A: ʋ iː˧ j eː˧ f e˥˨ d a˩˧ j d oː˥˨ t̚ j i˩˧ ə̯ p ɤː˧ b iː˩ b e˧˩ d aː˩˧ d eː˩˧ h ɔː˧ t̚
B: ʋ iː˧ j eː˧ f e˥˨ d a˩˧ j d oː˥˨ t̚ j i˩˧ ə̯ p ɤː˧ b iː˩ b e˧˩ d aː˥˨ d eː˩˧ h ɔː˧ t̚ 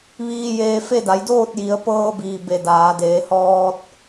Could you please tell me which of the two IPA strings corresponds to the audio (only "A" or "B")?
A